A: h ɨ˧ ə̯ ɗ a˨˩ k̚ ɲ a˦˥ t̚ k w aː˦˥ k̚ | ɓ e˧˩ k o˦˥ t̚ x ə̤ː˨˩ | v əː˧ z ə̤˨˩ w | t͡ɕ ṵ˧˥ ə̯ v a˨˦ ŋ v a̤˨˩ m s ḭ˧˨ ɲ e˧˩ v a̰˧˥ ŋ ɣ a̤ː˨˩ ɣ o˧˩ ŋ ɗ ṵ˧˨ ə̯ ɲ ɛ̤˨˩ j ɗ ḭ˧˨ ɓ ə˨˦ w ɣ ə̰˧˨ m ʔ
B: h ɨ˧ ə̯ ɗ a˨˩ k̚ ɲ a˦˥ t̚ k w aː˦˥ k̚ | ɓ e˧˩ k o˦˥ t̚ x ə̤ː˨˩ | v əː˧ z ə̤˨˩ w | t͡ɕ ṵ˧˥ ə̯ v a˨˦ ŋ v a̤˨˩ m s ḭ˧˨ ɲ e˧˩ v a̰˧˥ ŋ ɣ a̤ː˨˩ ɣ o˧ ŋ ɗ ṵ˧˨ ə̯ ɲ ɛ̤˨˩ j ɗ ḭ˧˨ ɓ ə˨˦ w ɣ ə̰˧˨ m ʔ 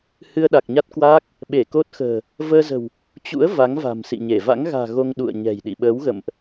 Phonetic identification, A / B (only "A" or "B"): B